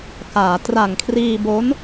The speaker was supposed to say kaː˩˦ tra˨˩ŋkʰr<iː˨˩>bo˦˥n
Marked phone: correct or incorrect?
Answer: incorrect